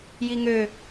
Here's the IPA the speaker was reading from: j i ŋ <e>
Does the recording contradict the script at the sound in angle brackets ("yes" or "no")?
yes